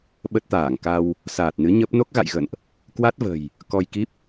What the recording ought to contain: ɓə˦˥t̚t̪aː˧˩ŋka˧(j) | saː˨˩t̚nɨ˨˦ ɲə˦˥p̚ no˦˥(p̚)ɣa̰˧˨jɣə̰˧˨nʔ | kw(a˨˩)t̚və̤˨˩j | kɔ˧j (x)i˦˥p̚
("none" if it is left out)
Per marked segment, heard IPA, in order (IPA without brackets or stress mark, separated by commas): w, k̚, a˦˥, k